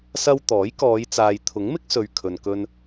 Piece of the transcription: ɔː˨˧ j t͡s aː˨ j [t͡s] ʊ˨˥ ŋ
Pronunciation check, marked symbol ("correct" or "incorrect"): incorrect